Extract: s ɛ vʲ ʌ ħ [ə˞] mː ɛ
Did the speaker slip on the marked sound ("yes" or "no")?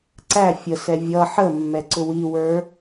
yes